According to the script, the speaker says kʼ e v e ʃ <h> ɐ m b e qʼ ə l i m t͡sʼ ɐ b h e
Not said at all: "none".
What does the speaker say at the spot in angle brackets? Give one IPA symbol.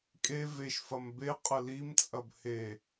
f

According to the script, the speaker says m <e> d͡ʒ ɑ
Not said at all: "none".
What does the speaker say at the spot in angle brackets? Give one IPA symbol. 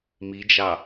i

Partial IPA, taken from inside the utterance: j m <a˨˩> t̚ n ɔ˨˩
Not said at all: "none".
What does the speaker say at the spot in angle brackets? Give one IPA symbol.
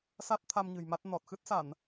a˦˥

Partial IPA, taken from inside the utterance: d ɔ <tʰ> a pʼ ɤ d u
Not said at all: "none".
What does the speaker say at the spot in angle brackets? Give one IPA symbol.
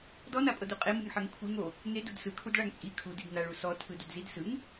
n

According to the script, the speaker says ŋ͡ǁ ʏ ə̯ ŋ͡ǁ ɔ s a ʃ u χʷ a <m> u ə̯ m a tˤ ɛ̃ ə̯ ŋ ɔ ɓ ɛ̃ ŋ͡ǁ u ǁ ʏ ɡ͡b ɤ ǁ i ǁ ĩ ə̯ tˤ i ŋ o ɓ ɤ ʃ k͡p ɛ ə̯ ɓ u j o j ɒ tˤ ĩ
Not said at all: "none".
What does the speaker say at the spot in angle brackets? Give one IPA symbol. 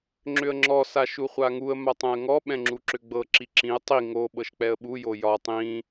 ŋ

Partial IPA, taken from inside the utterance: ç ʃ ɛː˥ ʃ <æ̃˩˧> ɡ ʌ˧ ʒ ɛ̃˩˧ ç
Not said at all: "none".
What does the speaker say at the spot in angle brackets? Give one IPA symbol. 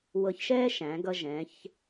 æ̃˩˧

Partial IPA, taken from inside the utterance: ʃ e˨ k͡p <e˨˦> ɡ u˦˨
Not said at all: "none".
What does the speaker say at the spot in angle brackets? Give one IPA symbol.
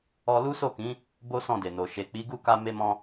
i˨˦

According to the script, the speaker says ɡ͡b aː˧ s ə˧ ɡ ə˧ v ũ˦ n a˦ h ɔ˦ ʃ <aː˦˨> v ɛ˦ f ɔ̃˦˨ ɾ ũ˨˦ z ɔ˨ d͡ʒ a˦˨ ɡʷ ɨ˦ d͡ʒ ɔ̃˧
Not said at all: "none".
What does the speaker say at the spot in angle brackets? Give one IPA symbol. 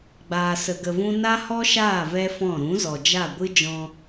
aː˦˨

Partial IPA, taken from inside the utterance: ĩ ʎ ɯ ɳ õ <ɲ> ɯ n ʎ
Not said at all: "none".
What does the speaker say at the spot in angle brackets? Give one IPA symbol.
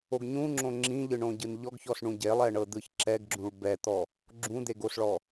ɟ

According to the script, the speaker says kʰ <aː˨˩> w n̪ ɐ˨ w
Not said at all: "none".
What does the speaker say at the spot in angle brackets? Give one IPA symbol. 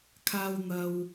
aː˧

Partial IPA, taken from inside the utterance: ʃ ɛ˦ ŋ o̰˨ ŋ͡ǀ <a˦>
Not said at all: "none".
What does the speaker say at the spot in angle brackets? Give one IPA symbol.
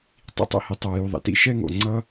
ʌ˦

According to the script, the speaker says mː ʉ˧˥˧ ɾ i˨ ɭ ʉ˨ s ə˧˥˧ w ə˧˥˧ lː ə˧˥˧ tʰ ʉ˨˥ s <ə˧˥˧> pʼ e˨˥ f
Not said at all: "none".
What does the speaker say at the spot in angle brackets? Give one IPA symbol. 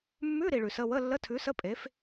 ə˧˥˧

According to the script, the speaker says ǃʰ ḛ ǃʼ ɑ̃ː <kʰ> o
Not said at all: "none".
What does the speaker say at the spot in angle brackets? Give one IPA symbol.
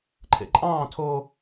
tʰ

